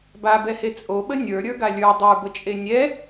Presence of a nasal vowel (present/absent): absent